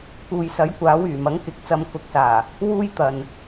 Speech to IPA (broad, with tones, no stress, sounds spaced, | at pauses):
k uː˨ j s ɐ˨˥ j kʷ aː˨˥ w yː˨˩ m ɐ˨˥ ŋ k ɪ˨ k̚ t͡s ɐ˧ m k ʊ˨ k̚ s aː˨˩ | w uː˥ j t̪ ɐ˨ n